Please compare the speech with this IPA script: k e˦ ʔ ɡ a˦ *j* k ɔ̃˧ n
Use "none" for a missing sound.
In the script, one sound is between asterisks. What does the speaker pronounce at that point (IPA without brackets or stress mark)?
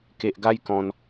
j